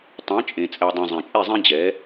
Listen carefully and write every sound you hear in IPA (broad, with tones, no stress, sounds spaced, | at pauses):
tˤ ɛ̃˨˦ t͡ʃʼ ẽ˨ t͡sʼ ɛ˨ dˤ œ̃˨ zˤ ẽ˨ t͡ʃʼ e˦˨ zˤ ẽ˦ d͡ʑ ɛ˨˦